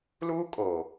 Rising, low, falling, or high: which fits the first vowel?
high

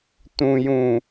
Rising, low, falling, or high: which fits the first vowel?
low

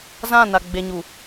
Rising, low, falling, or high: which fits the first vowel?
falling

